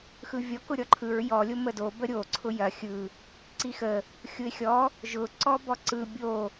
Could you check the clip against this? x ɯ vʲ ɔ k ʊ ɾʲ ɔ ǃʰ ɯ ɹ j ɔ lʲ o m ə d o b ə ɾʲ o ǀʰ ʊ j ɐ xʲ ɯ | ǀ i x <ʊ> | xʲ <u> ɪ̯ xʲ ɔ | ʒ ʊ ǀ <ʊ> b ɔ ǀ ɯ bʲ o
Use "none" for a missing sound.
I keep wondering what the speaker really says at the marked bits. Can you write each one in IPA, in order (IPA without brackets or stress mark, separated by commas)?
ə, ʊ, ɔ